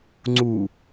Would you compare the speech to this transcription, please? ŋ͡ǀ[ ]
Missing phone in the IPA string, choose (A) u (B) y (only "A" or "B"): A